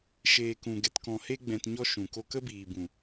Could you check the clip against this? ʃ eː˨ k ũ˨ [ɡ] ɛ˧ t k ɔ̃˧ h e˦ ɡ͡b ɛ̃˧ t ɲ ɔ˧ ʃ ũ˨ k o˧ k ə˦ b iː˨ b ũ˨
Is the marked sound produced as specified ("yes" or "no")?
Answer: yes